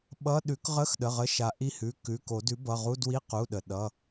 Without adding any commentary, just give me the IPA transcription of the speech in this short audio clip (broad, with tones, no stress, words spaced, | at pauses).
ɓʌ˧˥˧ ɗʉ˨˩˦kʁə˧˥˧xɗə˩˧˩ ʁə˩˧˩ʃa˩ ʔi˦˨hʉ˩˧˩ kʉ˩˧˩ko˨˩˦ dʉ˩˥bʌ˩˧˩ʁu˧˥˧dwi˧˥˧ qu˩˧˩ɗə˩ ɗʌ˩˧˩